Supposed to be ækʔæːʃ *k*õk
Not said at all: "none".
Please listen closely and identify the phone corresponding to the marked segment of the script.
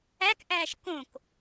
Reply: k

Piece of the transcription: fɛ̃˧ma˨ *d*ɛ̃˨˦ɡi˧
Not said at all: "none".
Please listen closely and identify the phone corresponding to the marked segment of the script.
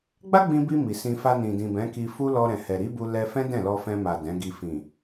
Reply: d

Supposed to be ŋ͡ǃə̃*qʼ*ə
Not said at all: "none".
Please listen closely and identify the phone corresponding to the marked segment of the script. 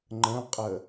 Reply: qʼ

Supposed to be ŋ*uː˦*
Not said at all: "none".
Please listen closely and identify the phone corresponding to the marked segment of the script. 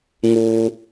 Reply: uː˦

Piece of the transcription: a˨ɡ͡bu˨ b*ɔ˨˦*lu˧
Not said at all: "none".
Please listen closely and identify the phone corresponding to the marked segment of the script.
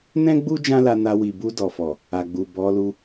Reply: ɔ˨˦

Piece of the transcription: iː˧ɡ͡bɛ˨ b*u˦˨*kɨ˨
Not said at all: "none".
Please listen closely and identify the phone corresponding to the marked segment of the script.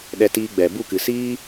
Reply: u˦˨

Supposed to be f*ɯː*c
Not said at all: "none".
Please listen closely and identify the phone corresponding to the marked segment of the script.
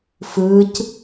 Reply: ɯː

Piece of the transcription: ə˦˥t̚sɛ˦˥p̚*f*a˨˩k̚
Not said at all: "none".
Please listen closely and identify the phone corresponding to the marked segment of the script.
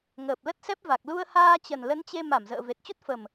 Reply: v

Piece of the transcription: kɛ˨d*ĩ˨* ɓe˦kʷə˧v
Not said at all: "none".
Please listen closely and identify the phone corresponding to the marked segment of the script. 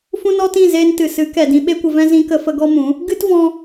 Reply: ĩ˧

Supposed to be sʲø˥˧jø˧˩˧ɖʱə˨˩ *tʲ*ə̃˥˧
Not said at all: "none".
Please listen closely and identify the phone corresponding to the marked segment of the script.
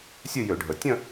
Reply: tʲ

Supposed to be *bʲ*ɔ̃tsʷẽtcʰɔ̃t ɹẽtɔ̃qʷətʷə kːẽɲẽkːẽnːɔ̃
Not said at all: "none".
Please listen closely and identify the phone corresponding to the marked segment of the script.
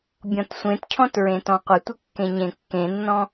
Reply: bʲ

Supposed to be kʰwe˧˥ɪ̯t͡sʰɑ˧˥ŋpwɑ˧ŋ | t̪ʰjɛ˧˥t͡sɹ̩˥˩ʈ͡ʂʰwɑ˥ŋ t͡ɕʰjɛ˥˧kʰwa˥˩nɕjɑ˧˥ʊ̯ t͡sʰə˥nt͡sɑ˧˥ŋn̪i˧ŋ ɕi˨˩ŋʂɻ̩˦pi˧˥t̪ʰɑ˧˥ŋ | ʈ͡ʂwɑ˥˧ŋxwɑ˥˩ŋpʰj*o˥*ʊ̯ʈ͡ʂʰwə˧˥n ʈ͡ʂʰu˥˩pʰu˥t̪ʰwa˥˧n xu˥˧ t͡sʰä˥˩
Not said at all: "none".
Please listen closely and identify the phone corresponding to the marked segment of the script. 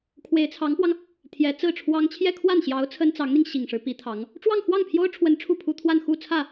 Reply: o˥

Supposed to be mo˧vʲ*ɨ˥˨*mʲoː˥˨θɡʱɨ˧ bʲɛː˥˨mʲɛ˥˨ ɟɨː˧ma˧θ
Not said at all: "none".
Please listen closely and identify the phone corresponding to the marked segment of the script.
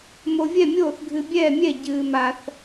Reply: ɛ˥˨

